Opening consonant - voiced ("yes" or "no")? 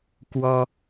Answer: no